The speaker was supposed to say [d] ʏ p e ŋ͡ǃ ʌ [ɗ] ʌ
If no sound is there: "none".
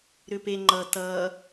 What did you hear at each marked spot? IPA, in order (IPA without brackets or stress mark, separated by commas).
ɾ, t